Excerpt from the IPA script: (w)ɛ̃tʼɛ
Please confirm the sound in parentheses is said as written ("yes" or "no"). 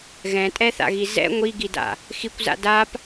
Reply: no